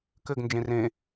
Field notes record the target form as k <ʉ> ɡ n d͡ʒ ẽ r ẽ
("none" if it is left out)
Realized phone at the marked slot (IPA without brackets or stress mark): ɘ